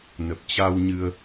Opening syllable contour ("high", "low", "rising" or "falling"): low